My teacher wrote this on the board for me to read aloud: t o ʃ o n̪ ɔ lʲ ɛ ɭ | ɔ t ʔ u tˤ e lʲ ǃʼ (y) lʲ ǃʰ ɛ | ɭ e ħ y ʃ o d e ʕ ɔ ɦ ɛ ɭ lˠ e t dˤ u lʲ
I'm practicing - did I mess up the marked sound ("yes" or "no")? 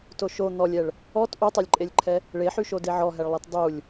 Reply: yes